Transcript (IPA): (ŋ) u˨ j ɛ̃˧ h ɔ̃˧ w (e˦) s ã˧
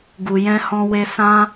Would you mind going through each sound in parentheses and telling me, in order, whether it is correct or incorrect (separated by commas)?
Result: incorrect, incorrect